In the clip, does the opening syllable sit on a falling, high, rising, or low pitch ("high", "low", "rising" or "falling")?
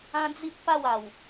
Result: high